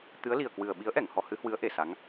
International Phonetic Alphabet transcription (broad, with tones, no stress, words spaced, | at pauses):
t̪ɨ˨˦ə̯li˨˩ə̯kwɨ˨˩ə̯ ɓi˨˦ə̯ʔɛ˧˩ŋ hɔ˧hɨ˨˦hwɨ˨˦ə̯ ʔe˧˩sa˨˦ŋ